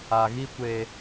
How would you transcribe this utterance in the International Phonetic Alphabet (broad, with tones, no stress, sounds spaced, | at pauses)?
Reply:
a˨ ɣ i˦ kʷ e˦